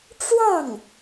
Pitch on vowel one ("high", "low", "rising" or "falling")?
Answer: falling